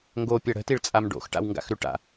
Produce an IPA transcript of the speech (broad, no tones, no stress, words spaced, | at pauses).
ŋɡopʲʌ ɽə̤tiɭt͡sʼam ɖo̰xʈa̰wŋɡa̰xɾʉ ʈa̰